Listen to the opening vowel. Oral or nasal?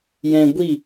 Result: nasal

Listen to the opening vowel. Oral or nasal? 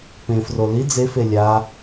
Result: nasal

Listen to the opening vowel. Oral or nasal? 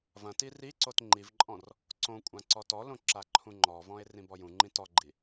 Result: nasal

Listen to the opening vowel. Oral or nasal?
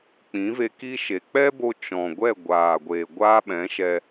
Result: nasal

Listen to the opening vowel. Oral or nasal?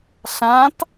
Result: nasal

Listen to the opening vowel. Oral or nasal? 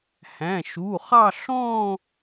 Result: nasal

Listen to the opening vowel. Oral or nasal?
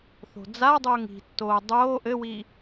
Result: oral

